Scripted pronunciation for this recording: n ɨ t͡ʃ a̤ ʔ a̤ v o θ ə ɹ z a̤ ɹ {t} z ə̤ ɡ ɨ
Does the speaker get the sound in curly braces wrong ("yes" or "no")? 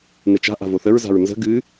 yes